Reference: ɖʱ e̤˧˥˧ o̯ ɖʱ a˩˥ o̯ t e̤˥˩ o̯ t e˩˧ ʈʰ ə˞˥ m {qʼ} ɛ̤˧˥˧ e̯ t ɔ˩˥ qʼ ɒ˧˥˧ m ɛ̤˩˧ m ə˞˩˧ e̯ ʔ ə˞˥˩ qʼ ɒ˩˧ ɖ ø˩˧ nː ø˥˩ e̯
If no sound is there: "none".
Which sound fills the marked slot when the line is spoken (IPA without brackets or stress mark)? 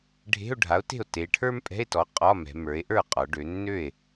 pʼ